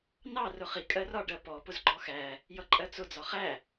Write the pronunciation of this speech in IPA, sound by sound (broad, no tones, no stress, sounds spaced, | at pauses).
n ɑ r ʊ χ i kʼ ɜ r ɒ ɖ ɜ p ɔ p ʊ z ɡ͡ǃ ɔ x æ | j ʌ ǃʼ ɜ t͡s ʊ d͡z ɒ χ æ